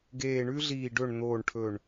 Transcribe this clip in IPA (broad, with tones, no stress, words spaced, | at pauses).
ɡeː˨˩ɳʉ˦ɮiː˨˩ ɖɵ˨˩ɳ n̪oː˨˩ɳʈʰɵ˨˩ɳ